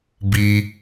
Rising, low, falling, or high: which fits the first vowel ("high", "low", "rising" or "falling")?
high